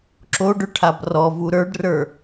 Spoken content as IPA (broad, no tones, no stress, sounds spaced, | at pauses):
ǁ o ɖ ɵ ʈʰ a b r ɔ v u ɾ ə˞ ɖ r ə˞